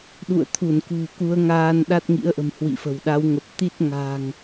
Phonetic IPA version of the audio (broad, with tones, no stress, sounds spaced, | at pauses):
ɗ ṵ˧˨ ə̯ t̪ʰ u˧˩ n k ṳ˨˩ k u˨˦ ə̯ ŋ aː˧ n ɗ a˦˥ t̚ ŋ ḭ˧˥ ə̯ ʔ ə̤˨˩ m h w ḭ˧˨ f ə̤˨˩ w ɗ a˨˦ w ŋ ə˨˩ p̚ t̪ i˦˥ t̚ ŋ a̤˨˩ ŋ